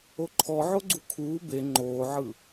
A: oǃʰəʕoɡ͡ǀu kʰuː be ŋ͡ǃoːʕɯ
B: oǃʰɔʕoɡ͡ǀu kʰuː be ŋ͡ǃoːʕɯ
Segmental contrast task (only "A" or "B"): B